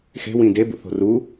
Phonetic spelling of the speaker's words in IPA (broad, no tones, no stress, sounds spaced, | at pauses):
x e̤ w ĩ d e b ṵ θ o̤ r u